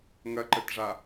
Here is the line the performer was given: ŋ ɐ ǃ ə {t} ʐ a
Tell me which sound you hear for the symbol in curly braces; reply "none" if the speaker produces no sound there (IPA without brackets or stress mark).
t